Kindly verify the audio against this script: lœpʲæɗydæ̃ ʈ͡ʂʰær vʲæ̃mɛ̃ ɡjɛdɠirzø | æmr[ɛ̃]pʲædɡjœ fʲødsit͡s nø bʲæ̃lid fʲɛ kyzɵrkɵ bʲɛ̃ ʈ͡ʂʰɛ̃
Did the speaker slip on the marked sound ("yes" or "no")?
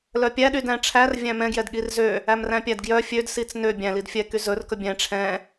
yes